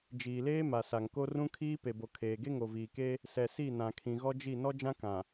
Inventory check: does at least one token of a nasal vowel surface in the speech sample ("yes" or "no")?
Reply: yes